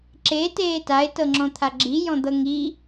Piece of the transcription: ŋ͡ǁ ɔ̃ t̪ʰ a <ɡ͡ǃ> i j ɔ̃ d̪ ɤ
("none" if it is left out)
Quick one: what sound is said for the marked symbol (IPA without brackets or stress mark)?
ɡ͡ǁ